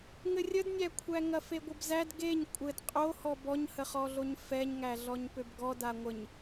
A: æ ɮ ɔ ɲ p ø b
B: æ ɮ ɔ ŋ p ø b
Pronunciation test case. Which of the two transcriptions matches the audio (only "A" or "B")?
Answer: A